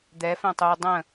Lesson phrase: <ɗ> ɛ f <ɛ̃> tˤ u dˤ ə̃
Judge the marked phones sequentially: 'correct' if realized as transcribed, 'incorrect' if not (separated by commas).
incorrect, correct